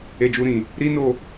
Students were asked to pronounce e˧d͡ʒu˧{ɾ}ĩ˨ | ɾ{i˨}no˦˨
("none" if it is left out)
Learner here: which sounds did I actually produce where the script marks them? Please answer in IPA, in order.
ɾ, i˦

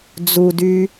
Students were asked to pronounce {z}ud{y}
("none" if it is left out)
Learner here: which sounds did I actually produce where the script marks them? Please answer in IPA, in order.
d͡z, y

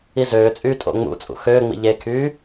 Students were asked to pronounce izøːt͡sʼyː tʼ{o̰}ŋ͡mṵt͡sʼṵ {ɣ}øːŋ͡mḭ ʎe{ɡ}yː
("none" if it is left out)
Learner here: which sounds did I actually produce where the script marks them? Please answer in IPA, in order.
o̰, x, kʰ

